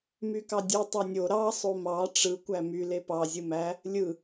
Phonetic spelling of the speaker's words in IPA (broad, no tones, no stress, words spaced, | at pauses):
mykɑdʲɯ tˤɑnʲo ɾɑ sˤomɑ ʈ͡ʂɯ kʷæmy lepɑ zʲɯmæ | lʲɯ